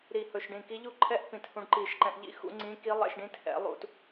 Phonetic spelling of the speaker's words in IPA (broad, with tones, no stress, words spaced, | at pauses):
ɾi˧˩hɵ˧˩ʃɖĩ˧˩ ki˧˥ʎu˥˧ǃʰɛ˥˧ʔ pĩ˧˩thũ˧ɖ ǃi˧˩ʃǃɛ̃˧ʔʎḭ˥˧ xṵ˧˥ŋ͡ǀĩ˧˥ ki˧˥ lˠɛ̰˧ʃɖĩ˧˥t hɛ̰˨˩˦lˠṵ˧t